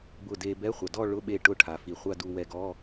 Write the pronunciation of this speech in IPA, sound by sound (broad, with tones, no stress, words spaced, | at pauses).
bʊ˧˩de˧ bɛ˧˥˧χʷa˩dɔ˥˧ ɭʊ˧˥˧ɓe˧˩ ʈʊ˥˧ ʈʰa˩fi˩χʷa˥˧du˧ wɛ˧ɡɔ˧˥˧